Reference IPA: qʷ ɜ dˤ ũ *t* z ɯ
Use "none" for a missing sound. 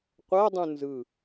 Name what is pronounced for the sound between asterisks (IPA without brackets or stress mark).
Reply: n